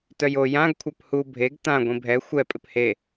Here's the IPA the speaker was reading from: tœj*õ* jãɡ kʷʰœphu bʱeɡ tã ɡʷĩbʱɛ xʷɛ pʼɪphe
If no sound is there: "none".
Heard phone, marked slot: o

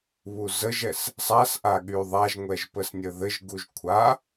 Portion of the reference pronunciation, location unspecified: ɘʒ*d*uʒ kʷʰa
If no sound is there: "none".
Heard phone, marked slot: ɡ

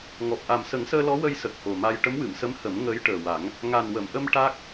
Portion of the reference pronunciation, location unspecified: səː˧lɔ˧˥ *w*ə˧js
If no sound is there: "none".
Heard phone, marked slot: w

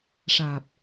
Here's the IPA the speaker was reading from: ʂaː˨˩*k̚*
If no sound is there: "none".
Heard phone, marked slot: p̚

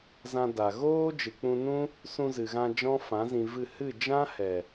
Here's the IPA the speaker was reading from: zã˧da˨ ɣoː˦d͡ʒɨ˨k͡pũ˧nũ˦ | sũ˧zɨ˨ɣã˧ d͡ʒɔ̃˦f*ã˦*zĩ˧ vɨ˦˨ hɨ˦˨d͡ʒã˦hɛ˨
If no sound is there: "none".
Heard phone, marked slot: ã˨˦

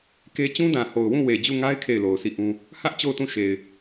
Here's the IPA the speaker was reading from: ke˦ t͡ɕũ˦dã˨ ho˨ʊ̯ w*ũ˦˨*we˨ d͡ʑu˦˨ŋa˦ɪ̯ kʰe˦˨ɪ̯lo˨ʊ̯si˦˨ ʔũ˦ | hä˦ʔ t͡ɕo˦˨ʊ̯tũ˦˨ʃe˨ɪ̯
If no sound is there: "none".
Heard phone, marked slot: ũ˦˨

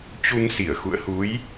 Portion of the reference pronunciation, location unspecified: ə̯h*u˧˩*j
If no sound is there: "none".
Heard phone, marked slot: u˨˦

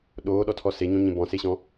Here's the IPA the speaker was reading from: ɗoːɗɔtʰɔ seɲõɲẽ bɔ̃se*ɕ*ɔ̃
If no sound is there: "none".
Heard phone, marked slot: ɕ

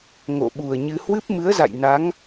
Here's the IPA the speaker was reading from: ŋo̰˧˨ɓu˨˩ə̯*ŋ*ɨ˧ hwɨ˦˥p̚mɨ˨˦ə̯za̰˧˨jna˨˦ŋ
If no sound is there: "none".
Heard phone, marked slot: ɲ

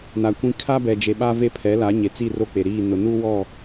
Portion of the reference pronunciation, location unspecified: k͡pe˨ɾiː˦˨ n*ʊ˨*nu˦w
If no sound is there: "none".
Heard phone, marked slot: ʊ˨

